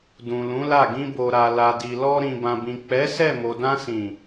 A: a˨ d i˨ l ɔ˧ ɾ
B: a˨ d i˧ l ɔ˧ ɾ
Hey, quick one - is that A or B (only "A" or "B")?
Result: A